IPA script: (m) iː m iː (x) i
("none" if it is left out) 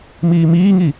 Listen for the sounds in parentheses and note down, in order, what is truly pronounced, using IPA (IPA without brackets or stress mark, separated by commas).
m, ŋ